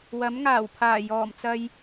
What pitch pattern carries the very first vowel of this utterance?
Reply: rising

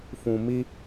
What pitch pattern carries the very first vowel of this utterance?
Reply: low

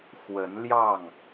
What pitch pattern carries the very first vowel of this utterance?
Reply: rising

